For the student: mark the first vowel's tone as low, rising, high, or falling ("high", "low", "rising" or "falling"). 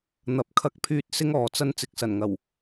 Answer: rising